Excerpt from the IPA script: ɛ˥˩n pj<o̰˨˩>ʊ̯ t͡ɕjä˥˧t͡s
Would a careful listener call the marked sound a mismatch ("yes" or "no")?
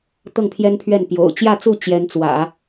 no